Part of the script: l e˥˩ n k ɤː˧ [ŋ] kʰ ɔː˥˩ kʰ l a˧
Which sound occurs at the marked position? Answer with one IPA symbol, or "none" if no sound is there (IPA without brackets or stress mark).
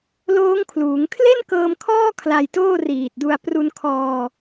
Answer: m